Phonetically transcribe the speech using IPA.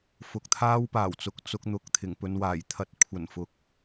fʊ˨k̚t̪ʰaː˥wpaː˨˩wt͡sʊ˨˥k̚ t͡sʊ˧k̚n̪ʊ˨k̚ t̪ʰɪ˨˩ŋpɵ˧nwaː˨˩jt̪ʰɐ˧t̚ kʷʰɐ˨˩nfʊ˨˥k̚

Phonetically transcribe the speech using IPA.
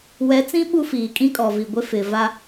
wɛ˨˦t͡sĩ˦ ɓu˦fiː˨ kʼĩ˦kʼɔ˨vi˨ ɡʷɪ˦fɪ˨ va˦

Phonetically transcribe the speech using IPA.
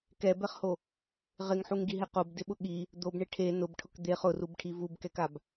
kɛbɛχho | ʁɪŋħuŋɡiɦɛ qobdɪɓʊ ɠi | d̪obɳɪ ʈʰe nʊbʈʰʊk d̪eχ ʊrubʈʰi vubkɛkab

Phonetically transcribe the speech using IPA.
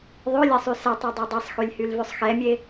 ðˤølʲɛsˤy sɛtˤødˤø dˤesˤxylʲhylvøsˤ xɛmʲe

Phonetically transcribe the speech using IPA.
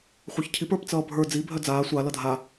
χʷə˞çcʰip ə˞pt͡sʌːbʱə˞ d͡zi bʱœd͡zaː sʷa lʌdʱa

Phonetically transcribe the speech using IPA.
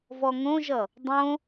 vɔŋõʒʌ | dˤõ

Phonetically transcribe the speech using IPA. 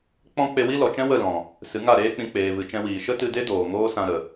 k͡pɔ̃˦ k͡pe˧wi˦lɔ˨t͡ʃɛ̃˦ wə˦˨lɔ̃˨ | sɨ˨˦ŋa˦˨ɾeː˦k͡pĩ˧ k͡peː˨vɨ˨ t͡ʃɛ̃˧wiː˨ ʃə˦tɨ˧de˦doː˨ ŋoː˦sã˧ɾə˨

